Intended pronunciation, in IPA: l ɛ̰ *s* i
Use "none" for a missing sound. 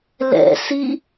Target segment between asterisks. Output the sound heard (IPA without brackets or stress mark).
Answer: s